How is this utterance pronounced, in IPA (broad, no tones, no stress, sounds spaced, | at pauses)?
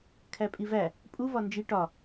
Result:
kʰ æ pʼ i v æ | pʼ u v ɒ n d͡ʒ i ʈ ɒ